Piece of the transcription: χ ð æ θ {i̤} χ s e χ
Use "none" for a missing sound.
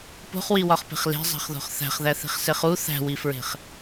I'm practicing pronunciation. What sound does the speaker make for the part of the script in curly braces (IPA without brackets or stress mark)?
i̤